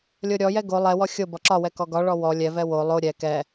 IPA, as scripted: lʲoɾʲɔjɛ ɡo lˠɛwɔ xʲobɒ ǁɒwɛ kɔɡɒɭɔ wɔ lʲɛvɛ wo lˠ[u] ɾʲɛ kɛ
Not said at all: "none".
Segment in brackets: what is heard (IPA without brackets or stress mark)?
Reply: o